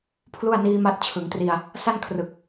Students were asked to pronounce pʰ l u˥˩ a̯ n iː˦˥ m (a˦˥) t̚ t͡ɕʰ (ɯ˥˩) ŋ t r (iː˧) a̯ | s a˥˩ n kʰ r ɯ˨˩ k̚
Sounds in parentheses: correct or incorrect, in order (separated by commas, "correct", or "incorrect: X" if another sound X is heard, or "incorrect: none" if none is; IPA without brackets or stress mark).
correct, incorrect: ɯ˩˦, incorrect: i˧